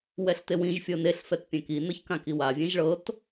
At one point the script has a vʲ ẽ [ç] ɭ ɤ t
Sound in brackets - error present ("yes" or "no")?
yes